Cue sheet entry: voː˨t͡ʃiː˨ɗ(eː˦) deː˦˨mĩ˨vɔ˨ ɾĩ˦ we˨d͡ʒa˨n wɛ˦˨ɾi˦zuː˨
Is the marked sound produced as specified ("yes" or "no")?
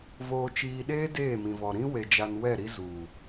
yes